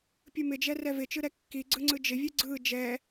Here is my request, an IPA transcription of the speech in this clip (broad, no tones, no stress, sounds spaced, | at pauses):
pʲ ɯ m ɪ d͡ʒ ɛ r ɛ v ɪ t͡ʃ ɯ ɾ ɛ kː i ɡ͡ǀ ɯ ŋ͡ǀ ɯ d͡ʒ ɪ vʲ ɯ ɡ͡ǀ ɯ d͡ʒ ɛ